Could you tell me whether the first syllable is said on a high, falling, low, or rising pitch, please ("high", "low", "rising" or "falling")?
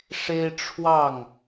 high